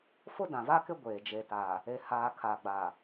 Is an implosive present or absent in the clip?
absent